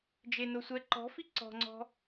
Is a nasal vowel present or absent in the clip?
absent